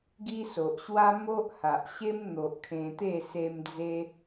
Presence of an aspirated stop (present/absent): present